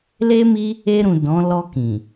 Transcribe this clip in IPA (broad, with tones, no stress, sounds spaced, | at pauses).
l e˦ m i˦ | e˧ ɾ ũ˨ d ɔ̃˨˦ l ɔ˧ k ĩ˨